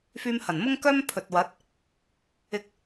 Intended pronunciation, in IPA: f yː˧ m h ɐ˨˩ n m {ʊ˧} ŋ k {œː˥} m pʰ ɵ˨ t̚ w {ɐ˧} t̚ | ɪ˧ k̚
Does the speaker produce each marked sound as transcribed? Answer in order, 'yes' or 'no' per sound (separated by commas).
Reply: no, yes, no